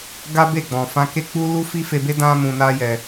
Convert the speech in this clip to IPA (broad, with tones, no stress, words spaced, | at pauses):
ɡa˦be˦˨ɡ͡bɔ̃˨ fã˧ke˦ k͡pu˦ lu˦fi˦fe˧be˦ dã˦ mũ˧na˦jɛ˧